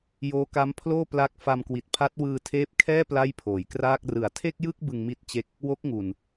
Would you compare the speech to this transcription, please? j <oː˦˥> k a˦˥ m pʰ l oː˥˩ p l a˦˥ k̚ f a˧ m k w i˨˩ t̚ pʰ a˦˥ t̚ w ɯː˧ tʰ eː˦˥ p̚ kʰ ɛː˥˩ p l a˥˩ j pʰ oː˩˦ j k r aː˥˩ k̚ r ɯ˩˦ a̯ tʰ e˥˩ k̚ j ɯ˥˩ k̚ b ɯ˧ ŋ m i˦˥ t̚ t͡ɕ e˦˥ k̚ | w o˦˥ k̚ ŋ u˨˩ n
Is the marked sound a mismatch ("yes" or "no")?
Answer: no